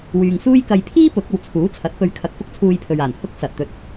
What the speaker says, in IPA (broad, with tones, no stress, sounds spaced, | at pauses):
w yː˨ ŋ s uː˥ j k ɐ˧ j pʰ iː˥ p ʊ˨˥ k̚ ɐ˨ w t͡sʰ uː˨˥ t͡sʰ ɐ˨˥ t̚ p ɵ˧ ɥ kʰ ɐ˧ k̚ f ʊ˥ k̚ t͡sʰ uː˧ j pʰ ɵ˨ ɥ aː˨˩ n h ʊ˥ k̚ s ɐ˨ t̚ t̪ ɵ˨˥ t̚